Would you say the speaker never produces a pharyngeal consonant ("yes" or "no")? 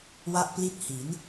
yes